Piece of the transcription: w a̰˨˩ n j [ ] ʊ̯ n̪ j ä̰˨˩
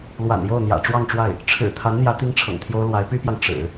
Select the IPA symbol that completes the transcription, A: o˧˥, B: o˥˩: B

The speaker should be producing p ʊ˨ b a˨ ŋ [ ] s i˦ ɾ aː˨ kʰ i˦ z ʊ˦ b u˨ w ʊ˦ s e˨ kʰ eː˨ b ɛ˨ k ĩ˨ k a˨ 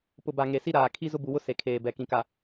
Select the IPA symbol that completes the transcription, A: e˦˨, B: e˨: B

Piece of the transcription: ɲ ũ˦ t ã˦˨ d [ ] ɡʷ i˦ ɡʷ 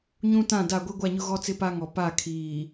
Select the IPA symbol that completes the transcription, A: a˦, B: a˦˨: B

